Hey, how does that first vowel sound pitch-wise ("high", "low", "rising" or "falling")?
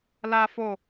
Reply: high